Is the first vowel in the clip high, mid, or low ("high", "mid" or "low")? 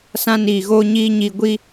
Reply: low